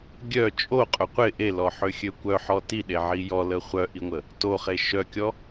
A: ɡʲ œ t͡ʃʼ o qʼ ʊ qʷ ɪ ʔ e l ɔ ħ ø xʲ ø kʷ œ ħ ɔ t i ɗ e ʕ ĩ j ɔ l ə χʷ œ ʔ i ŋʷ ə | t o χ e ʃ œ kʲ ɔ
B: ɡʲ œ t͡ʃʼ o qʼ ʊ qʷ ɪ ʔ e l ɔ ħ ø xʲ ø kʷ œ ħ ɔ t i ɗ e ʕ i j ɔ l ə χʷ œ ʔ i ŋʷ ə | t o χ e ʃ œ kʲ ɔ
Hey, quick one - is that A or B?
B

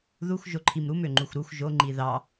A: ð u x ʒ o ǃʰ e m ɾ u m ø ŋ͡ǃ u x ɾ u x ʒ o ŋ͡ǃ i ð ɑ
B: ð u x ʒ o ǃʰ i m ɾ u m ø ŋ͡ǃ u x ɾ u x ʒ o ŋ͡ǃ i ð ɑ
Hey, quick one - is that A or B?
B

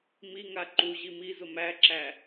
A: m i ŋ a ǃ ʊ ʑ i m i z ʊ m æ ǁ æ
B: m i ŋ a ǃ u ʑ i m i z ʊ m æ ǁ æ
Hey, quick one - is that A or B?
B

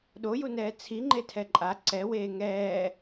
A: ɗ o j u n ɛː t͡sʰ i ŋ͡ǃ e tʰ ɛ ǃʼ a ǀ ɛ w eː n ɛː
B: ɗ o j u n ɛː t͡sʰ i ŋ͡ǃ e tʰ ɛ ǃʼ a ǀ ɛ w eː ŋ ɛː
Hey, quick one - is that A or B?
B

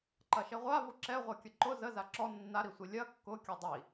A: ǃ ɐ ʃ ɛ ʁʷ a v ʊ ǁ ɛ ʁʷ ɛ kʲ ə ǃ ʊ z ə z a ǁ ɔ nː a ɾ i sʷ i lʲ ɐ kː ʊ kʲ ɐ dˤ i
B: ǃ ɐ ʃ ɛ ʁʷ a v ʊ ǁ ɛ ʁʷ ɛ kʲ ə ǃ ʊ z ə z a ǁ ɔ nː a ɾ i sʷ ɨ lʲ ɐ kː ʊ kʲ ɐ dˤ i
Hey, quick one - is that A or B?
A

